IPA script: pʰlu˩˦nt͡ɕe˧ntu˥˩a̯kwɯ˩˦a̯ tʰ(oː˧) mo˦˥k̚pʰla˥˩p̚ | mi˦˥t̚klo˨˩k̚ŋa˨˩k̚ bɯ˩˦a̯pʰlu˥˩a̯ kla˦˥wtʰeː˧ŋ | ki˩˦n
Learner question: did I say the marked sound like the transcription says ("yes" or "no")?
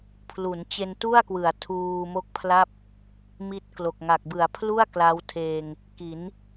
no